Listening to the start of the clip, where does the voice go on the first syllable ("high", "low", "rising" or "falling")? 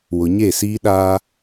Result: low